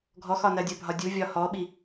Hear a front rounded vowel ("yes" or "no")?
no